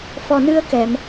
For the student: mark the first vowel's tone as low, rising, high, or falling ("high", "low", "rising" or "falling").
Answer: low